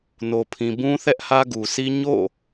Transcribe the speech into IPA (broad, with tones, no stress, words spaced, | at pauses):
no˨pʰĩ˨bũ˦ θɛ˦ʔhä˦ɡu˨sʰi˦ ɲo̰˦˨